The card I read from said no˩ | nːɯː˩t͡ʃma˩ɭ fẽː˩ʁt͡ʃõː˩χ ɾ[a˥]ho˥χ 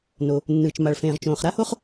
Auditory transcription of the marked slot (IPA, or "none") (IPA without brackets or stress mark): a˥